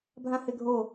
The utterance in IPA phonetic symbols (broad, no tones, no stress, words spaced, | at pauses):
bʱãheɡʱo